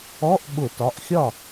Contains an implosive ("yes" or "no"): yes